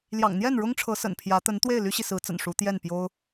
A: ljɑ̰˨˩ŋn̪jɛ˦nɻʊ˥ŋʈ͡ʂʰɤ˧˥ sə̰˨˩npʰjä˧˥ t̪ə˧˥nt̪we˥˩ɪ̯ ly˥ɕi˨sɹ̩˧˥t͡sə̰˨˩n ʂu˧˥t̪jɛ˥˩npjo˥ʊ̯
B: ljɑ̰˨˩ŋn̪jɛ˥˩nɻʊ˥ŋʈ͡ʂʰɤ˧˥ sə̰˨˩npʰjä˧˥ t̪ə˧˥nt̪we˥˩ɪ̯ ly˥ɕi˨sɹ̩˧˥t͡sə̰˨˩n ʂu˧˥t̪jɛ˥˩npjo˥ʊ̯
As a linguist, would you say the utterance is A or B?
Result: B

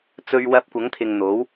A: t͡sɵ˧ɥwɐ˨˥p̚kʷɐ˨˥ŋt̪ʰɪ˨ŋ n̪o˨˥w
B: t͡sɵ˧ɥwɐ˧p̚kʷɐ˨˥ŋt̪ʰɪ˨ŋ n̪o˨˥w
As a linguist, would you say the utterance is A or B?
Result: B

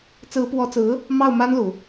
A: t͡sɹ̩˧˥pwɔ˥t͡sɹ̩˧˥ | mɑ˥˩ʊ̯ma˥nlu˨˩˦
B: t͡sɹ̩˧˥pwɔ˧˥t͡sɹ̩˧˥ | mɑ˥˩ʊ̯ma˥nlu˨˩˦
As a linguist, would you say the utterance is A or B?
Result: B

